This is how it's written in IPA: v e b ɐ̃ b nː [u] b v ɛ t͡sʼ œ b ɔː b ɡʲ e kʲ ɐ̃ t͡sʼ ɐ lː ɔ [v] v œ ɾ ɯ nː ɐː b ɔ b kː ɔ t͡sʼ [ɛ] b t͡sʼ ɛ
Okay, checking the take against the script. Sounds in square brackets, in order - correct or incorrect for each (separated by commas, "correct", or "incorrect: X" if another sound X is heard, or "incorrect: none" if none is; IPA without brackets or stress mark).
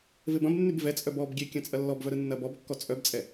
incorrect: y, incorrect: b, incorrect: œ